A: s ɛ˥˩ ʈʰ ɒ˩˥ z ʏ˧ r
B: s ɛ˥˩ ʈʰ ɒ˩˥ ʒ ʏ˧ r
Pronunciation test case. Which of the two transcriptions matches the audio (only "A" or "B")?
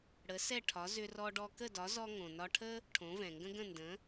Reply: A